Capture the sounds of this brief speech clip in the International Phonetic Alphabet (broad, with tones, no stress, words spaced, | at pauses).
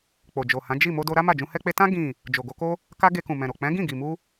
k͡po˨d͡ʒo˨hã˨˦ d͡ʒi˦˨ mo˧do˧ɾa˦ ma˦˨d͡ʒũ˧hɛ˦k͡pe˦ tã˦ ɡĩ˦˨ | d͡ʒo˨ɡo˧ko˦ | ka˦ ɡe˧kũ˨ mɛ̃˨ɾo˨ k͡pɛ̃˨˦ɡĩ˦˨ɡi˨mu˧